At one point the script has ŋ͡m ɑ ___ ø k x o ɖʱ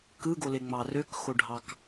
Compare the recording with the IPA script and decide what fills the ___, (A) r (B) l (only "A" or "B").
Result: A